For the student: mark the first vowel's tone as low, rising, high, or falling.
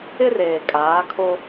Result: high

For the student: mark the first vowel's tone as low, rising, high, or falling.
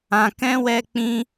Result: low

